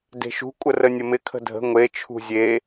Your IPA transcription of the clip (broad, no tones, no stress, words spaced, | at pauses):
de̤ʃṳ kʷʼərənʲəmɪ kʰə̤dʱə̤ ŋʷe t͡ʃʰṳzʲe